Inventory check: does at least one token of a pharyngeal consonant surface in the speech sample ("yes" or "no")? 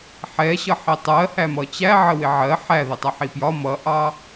yes